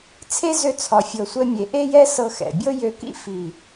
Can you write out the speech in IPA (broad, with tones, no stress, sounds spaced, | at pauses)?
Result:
t͡sʰ e˦ z ø˦ t͡sʰ ɒ˧ fʲ ɤ˧ sʷ ɛ˦ mʲ e˧ ʔ e˦ j ɛ˦ s ɤ˧ x ɛ̰˨ bʲ ɤ˦ j ø˧ k ḭ˦ f i˨